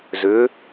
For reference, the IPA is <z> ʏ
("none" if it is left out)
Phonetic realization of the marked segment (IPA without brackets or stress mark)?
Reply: z